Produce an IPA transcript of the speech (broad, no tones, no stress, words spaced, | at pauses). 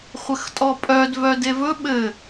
χʷɘxtʼɔpʼœd vœdevɵ ɓɘ